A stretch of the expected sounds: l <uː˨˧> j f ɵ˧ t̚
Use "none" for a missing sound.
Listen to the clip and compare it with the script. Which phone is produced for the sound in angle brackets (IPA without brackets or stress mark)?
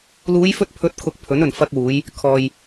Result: uː˨˧